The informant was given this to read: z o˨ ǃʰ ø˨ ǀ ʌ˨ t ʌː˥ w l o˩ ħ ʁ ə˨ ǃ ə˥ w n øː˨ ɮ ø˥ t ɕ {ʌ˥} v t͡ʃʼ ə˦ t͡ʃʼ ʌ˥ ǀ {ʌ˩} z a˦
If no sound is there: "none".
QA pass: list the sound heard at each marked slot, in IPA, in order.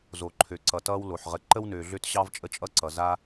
ɑ˥, ʌ˩

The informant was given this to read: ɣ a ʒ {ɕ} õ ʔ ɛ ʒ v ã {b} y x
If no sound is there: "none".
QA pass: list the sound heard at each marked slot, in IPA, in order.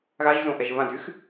z, d

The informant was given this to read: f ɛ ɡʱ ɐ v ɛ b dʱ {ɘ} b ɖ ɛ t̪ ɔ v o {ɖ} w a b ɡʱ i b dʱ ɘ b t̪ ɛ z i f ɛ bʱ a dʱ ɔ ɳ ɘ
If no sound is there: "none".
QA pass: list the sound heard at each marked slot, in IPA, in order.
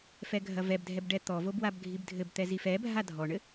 ɛ, b

